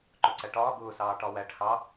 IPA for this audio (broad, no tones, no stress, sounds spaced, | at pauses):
ǃ ʊ ǀ æ ʈ ɒː ɡ ʊː s ɑː ʈ ɒ w æ ʈ x ɑ